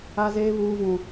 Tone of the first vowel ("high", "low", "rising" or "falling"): high